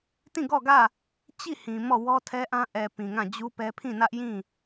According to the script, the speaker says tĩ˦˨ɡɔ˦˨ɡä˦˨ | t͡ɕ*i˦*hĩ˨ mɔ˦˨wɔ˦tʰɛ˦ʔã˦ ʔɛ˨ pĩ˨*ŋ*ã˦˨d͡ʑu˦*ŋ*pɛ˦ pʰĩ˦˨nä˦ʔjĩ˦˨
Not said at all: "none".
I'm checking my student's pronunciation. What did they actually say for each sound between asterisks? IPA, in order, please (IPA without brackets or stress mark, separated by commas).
i˦˨, ŋ, none